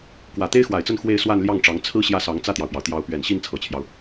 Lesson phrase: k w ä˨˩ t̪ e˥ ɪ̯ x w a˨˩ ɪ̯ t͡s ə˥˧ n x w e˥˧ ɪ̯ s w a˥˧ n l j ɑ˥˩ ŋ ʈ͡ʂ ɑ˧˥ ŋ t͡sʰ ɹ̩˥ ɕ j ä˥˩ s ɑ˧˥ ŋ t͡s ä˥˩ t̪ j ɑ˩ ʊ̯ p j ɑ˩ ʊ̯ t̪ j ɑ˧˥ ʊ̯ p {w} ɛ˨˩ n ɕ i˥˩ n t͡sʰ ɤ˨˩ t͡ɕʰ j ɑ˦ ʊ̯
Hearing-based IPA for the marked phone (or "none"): ɥ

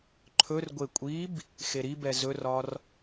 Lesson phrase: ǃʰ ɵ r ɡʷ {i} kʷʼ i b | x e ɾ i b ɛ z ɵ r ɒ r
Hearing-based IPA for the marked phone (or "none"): e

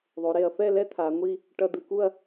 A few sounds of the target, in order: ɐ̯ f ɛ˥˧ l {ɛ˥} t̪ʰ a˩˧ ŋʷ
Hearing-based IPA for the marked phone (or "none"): ɛ˥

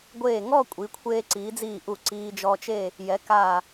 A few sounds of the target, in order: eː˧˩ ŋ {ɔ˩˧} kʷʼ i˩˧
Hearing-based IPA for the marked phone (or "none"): ɔ˥˧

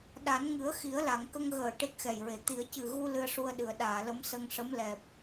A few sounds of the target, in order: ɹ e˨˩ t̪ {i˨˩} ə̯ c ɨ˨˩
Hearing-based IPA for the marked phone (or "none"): i˨˩˦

